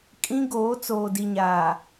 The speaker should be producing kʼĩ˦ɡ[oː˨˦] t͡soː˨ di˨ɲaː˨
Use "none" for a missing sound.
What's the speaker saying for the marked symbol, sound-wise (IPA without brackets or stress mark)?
oː˨˦